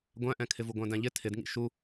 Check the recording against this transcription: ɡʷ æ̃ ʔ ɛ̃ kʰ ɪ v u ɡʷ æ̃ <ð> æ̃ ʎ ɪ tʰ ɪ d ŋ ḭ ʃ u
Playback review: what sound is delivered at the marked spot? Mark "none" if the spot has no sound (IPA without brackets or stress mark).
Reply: d